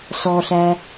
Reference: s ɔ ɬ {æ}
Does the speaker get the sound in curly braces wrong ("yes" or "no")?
no